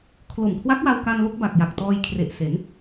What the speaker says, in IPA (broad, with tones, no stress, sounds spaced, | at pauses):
kʰ l o˨˩ m kʰ w a˦˥ k̚ w a˧ w k a˧ n l o˦˥ k̚ b a˨˩ k̚ j a˨˩ k̚ t ɔː˧ j kʰ r e˨˩ ʔ s e˩˦ n